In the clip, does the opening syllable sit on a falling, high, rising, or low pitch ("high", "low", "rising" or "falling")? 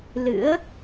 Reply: rising